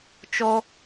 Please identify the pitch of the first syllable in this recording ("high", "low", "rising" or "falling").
high